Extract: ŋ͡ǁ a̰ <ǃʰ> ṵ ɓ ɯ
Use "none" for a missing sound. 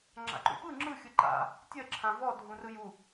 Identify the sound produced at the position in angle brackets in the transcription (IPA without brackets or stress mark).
ǃ